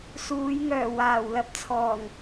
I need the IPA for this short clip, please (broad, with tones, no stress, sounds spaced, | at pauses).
s uː˨˧ j ŋ œː˨˩ w aː˨˩ w l ɐ˧ p̚ t͡sʰ ɔː˨˩ ŋ